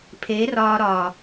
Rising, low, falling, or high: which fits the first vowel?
rising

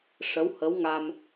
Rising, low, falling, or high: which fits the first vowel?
rising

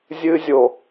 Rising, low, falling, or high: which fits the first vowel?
high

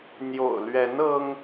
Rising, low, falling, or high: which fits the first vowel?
low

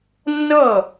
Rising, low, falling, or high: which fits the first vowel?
falling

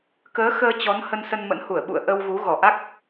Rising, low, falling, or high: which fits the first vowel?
rising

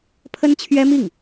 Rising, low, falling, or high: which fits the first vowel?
high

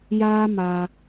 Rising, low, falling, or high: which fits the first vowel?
high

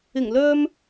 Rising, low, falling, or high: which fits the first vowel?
low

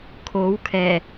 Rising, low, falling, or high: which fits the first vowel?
rising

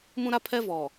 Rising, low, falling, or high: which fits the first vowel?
high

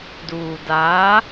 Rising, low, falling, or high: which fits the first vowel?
low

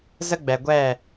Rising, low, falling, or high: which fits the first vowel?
high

